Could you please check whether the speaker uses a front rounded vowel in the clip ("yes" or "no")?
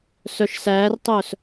yes